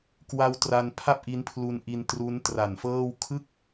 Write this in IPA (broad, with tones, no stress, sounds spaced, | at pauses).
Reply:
k w a˦˥ w t r a˧ n pʰ a˥˩ p̚ ʔ i˦˥ n pʰ l u˧ n ʔ i˧ n t r u˦˥ n t r a˨˩ n f ɤː˥˩ w kʰ ɯ˥˩ k̚